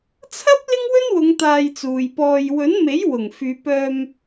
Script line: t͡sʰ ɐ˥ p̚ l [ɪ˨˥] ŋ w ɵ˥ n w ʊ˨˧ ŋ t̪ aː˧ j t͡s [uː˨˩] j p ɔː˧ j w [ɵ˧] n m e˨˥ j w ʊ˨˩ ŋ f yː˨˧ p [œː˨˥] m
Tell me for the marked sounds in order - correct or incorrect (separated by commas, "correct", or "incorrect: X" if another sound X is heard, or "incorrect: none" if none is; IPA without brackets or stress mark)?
incorrect: ɪ˥, incorrect: uː˨, incorrect: ɵ˨˥, incorrect: œː˧